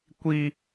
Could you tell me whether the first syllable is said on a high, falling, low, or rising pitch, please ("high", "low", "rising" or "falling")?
high